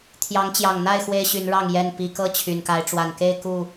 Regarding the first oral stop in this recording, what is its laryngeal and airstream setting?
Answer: aspirated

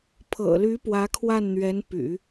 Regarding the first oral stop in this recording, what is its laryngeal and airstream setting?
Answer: aspirated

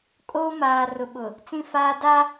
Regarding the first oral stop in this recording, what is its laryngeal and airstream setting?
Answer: ejective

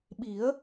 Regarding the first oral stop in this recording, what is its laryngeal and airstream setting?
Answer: implosive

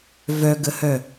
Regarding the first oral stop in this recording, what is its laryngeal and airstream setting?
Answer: plain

